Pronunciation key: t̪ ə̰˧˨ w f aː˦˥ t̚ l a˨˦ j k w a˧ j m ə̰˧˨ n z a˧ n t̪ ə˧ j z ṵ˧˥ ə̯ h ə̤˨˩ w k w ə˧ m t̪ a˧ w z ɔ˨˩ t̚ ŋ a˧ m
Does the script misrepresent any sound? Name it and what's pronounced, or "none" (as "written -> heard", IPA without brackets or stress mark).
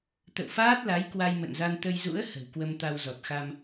ŋ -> x